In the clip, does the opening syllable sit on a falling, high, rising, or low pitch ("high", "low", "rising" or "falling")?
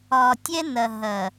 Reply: low